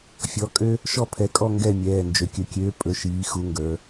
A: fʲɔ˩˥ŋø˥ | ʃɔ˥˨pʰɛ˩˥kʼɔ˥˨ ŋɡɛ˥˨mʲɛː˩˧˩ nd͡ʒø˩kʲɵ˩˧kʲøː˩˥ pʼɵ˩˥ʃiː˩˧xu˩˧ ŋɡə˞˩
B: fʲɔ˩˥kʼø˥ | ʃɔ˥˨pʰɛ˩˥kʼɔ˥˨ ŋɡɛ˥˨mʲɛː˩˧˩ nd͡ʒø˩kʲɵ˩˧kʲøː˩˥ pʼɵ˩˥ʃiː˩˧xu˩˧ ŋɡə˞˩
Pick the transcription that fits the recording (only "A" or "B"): B